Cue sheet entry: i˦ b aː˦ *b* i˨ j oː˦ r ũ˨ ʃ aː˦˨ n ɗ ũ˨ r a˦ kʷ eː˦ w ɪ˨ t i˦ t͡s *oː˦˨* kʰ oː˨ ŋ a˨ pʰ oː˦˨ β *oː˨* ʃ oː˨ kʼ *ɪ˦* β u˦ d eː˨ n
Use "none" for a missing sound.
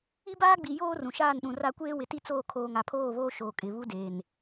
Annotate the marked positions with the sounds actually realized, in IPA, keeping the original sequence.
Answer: ɡ͡b, oː˦˨, oː˦, ɪ˨

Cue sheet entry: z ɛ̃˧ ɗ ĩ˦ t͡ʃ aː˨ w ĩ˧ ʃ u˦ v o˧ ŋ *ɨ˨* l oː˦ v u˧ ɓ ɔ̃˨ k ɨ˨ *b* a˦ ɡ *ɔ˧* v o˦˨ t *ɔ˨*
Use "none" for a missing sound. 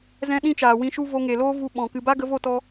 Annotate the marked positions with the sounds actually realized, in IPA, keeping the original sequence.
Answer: e˨, b, ə˧, ɔ˦

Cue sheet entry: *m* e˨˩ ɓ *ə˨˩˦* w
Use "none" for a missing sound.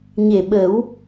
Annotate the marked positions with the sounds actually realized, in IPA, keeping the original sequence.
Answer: ɲ, ə˨˩˦

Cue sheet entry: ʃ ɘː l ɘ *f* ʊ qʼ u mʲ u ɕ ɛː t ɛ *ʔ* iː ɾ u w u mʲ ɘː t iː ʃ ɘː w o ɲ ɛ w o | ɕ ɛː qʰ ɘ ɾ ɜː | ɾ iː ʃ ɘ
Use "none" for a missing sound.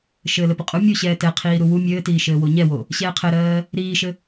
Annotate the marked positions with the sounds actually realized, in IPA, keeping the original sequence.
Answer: p, qʰ

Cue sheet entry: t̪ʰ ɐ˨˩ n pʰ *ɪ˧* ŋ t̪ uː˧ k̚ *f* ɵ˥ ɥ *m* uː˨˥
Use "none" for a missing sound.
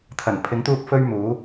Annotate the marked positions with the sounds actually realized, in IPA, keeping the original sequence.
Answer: ɪ˨˥, f, m

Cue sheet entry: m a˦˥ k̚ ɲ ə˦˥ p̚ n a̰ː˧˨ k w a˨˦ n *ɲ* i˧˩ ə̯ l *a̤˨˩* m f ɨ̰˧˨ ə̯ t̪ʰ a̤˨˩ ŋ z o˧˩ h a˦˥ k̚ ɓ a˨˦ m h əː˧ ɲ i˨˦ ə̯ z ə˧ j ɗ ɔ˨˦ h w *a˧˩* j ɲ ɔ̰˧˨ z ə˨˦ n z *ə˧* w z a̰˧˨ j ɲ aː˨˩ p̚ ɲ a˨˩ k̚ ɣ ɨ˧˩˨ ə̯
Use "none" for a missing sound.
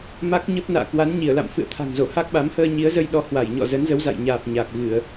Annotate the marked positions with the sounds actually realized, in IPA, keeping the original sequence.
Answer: ɲ, a̰˧˨, a˧˩, ə˨˦

